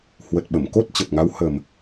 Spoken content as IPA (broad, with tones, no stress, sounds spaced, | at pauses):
h w ə˨˩ t̚ ɓ ə˧˩ m k o˦˥ t̚ t͡ɕ ə˨˩ p̚ ŋ a˨˦ w h ə˨˩ m